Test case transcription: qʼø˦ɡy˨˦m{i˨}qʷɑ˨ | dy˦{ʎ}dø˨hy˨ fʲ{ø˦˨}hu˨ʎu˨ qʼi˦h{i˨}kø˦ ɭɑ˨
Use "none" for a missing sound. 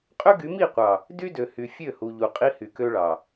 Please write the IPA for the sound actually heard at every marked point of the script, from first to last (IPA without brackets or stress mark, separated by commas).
i˦˨, none, ø˦˨, y˨